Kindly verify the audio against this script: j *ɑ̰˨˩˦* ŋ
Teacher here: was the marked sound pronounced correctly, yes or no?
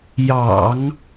yes